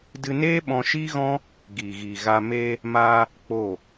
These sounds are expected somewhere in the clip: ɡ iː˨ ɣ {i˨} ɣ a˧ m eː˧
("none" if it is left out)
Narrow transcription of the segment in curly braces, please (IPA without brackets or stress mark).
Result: i˨